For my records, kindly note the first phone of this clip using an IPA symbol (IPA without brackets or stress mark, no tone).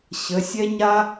ɕ